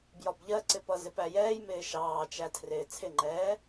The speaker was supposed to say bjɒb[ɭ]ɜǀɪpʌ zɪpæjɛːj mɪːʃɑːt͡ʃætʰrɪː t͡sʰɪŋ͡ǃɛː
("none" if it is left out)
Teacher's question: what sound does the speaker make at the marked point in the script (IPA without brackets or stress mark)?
ʎ